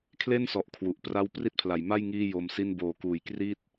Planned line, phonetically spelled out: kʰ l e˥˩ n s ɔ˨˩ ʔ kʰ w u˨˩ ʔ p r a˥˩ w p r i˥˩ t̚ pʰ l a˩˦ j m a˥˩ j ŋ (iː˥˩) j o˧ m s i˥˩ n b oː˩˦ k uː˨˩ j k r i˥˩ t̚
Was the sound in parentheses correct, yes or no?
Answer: yes